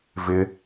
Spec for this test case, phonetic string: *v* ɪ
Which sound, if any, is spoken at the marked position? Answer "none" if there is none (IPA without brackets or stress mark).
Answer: v